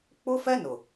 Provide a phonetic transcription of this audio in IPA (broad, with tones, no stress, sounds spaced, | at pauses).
k͡p ʊ˦ f ɛ˦ n ʊ˨